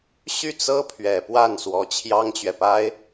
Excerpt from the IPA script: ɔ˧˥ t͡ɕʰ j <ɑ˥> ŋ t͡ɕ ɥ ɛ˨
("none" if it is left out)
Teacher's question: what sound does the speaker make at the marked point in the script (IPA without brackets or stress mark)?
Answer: ɑ˥